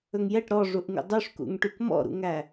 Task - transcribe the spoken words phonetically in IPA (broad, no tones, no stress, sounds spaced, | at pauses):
ɵ ŋ j ɛ ʈ ɾ ɔ ʐ u ʔ ŋ ṵ dˤ ʉ ʂ k ṵ ŋ ʈ y k m ɔ̰ ɾ ṵ ŋ æ